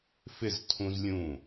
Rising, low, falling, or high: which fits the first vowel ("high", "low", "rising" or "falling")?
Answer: falling